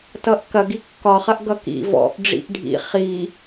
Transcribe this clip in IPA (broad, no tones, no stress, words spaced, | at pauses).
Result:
tʌʔkɐ ɡikːɒχɐʔ ɡʌkḭ vɔ̰ʔ ɖ͡ʐḭʔɖʱḭ χi